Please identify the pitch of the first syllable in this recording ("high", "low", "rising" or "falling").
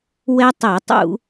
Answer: high